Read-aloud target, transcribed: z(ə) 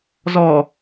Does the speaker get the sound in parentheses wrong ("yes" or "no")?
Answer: yes